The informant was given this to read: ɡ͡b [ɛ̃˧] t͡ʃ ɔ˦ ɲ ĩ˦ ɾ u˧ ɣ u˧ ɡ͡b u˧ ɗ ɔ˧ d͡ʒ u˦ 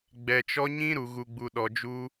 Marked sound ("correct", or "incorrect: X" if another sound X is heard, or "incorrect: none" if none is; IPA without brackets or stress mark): incorrect: ɛ˧